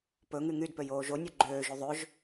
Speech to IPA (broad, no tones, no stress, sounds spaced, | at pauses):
p ɵ ŋ y ŋ y d p ø j oː ʒ o nʲ o ɡ͡ǃ øː ʒ y ðˤ ø ʒ